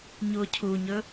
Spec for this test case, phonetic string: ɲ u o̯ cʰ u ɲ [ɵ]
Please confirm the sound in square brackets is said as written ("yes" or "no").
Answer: yes